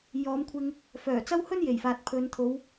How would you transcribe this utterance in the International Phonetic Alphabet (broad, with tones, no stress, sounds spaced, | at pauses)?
j ɔː˨˥ m kʷʰ ɪ˧ ŋ | f œː˨˩ t͡s ɐ˥ w h ɵ˥ n j e˨˩ j f aː˨ t̚ pʰ ɵ˨˧ n t̪ʰ o˨˧ w